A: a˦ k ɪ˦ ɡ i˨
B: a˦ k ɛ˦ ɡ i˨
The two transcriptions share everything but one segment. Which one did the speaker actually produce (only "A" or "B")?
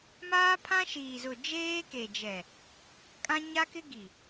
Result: A